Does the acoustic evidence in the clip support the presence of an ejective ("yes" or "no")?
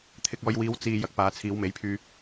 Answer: no